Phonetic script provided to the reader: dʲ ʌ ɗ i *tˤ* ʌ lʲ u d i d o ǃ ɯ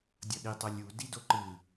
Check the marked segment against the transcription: correct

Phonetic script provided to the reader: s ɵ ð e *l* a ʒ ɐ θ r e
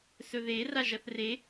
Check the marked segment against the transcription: incorrect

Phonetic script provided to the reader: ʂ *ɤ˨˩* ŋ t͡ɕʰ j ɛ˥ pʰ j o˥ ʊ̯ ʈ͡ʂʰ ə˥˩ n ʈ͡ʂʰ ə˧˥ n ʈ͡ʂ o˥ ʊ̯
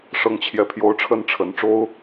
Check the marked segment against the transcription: incorrect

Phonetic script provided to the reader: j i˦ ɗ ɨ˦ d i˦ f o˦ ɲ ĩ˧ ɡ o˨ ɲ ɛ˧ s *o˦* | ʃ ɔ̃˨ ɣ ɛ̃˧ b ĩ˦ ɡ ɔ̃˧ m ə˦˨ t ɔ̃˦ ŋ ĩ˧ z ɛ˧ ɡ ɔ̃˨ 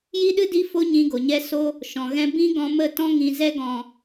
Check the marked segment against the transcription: correct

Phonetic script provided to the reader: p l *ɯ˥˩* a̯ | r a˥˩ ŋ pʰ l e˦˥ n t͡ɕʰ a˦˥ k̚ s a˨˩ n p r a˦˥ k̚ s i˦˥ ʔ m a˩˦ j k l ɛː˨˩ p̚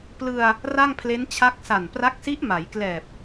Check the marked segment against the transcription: incorrect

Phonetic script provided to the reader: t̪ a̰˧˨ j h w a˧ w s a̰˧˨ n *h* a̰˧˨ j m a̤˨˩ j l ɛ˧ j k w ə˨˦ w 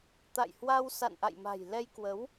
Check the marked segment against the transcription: incorrect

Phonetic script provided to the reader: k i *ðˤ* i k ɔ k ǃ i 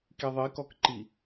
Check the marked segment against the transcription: correct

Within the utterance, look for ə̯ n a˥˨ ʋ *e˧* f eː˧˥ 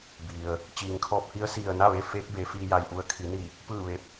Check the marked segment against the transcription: correct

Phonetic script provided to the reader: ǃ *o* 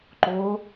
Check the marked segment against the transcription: correct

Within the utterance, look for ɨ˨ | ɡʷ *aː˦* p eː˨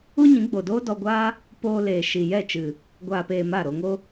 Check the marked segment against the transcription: incorrect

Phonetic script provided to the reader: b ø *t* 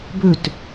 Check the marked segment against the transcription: correct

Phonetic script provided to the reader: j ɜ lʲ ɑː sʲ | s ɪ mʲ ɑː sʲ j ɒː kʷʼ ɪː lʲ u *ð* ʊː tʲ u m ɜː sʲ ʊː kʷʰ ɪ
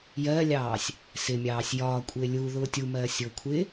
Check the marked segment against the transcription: correct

